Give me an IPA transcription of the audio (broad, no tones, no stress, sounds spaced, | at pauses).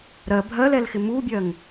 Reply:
ɾ ɜ bʱ ɜ l ɛ l x ɪ m u bʲ ɜ ŋ